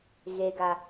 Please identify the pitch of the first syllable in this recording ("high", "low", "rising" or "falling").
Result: low